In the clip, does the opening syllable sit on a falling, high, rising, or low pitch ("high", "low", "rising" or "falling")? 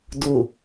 low